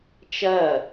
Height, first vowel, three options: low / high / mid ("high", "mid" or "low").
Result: low